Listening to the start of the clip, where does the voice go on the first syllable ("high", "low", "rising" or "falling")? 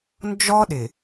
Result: high